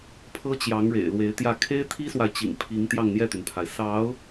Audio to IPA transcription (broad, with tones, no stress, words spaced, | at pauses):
pʰɤ˥t͡ɕjɑ˧˥ŋɻḛ˨˩ɪ̯ lwe˧˥ɪ̯t̪jä˥˩ kʰe˥ɪ̯t̪ʰi˥swa˨ɪ̯t͡ɕḭ˨˩ŋ pʰi˧˥ŋ t̪jɑ˥˧ŋn̪jɛ˥˩t̪y˩npʰa˩ɪ̯ sɑ˧˥ʊ̯